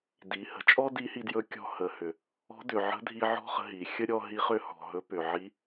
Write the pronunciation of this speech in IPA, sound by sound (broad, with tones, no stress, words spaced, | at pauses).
di˩˧hə̤˩˧t͡ʃʼɔ˥ di˧˥hi˧djɵ˧˥ kʲɔ̤˧hə˩˧hʏ˩ | ɔ̤˧˥ dʏ˩ʕə̤˧˥dʱi˧ ʕɔ̤˥χə̤˧ ɦi˩xʲə˥ ɾʲɔ˧ɦi˧˥χʏ˧˥ hɔ̤˩ ɦɵ˧˥ pʏ˩ʕi˧˥